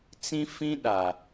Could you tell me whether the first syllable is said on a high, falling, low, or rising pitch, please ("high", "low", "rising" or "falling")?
high